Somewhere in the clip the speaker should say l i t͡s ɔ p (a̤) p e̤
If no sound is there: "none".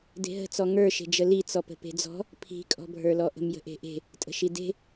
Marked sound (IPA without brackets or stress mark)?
ə̤